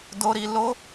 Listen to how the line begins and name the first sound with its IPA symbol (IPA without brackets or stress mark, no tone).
d